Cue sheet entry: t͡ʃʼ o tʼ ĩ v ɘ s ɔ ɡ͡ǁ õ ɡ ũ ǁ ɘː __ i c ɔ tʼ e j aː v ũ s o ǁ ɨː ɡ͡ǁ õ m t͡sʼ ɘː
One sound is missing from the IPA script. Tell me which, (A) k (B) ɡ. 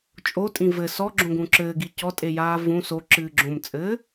B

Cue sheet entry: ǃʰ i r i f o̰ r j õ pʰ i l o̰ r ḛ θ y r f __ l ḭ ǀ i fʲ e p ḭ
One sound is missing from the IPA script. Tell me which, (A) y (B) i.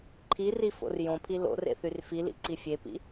B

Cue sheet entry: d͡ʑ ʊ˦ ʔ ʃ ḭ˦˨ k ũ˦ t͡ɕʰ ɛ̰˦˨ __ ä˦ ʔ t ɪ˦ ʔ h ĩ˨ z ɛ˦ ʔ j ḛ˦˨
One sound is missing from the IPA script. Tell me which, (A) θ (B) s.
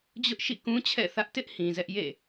A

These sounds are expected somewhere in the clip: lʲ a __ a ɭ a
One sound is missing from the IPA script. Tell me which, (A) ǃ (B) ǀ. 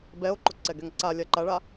A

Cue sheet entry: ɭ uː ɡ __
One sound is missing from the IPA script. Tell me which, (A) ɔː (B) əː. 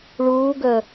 B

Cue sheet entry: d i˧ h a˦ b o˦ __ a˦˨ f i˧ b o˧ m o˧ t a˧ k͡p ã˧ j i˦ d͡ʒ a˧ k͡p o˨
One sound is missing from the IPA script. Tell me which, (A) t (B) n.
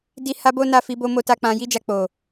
B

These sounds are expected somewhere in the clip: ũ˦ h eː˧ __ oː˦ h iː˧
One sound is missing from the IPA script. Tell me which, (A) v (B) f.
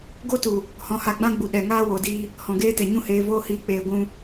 A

